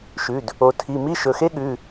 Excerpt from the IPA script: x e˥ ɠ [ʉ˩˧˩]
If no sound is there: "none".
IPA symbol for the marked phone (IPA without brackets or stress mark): ʉ˩˧˩